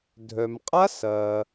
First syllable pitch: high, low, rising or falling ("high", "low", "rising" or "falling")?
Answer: low